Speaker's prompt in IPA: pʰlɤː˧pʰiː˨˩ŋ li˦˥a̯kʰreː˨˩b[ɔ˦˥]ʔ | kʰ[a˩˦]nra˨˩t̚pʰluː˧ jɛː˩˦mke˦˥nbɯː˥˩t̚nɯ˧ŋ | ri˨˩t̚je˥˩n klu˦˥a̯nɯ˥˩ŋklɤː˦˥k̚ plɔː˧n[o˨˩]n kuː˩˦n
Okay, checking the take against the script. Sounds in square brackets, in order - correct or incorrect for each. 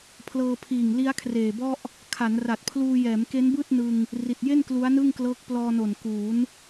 incorrect: ɔ˥˩, correct, correct

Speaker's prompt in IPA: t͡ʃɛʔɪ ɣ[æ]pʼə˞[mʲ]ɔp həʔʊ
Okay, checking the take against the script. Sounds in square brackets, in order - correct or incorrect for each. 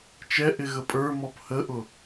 incorrect: ə, incorrect: m

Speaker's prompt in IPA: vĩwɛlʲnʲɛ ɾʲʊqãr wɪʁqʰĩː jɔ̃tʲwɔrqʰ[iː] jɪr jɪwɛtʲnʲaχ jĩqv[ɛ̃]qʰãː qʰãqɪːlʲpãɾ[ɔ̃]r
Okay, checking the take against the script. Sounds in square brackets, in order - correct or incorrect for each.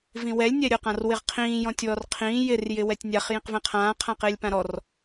incorrect: ĩː, correct, incorrect: ɔ

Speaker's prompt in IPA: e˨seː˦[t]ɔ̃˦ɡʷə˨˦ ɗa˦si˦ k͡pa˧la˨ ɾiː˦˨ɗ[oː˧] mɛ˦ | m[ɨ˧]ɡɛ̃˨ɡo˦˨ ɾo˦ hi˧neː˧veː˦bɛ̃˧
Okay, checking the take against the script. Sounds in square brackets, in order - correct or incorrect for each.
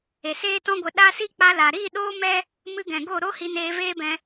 correct, incorrect: oː˦, correct

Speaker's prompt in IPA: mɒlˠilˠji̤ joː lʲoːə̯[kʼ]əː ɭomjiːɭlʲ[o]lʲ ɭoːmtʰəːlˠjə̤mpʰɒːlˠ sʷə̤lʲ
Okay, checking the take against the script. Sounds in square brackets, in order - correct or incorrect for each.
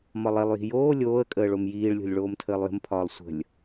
correct, incorrect: o̤

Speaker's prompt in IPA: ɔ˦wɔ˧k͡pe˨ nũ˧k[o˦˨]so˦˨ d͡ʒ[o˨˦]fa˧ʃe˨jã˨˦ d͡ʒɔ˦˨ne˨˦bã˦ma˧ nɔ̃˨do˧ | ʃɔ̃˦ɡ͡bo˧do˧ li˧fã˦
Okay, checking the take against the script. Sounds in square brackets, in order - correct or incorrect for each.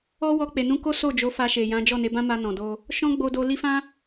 incorrect: o˦, correct

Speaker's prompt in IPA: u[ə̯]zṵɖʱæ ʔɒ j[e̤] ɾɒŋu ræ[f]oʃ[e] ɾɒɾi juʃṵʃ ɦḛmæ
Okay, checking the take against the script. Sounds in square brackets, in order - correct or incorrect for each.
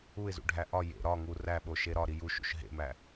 incorrect: ɪ̯, incorrect: ḛ, incorrect: ɓ, correct

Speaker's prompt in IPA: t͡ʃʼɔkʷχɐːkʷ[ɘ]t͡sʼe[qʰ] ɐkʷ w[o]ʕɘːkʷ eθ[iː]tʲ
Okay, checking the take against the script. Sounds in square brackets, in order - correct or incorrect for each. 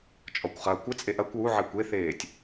correct, incorrect: ʔ, incorrect: u, incorrect: eː

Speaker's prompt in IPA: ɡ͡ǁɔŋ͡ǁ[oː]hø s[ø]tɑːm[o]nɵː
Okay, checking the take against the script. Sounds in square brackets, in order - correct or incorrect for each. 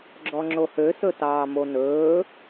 incorrect: o, incorrect: ɵ, correct

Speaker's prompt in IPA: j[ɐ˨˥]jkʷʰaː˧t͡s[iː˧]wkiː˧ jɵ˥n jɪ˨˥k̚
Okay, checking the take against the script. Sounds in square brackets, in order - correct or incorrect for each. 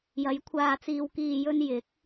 correct, correct

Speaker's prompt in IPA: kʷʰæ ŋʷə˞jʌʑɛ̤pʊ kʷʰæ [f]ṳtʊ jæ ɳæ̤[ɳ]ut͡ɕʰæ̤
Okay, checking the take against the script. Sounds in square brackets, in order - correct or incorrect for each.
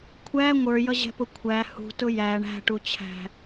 incorrect: h, incorrect: ʈ

